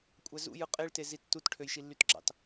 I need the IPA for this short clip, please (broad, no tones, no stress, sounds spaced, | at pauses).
kʷʼ æ z ṵ j ɯ qʼ e ɭ t e z i tː u t ʈʰ ø j ʃ i lː y t ɡ͡ǁ ɑ̰ t